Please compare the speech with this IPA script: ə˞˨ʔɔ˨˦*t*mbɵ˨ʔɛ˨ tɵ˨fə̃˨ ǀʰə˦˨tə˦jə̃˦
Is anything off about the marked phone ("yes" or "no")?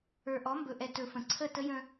yes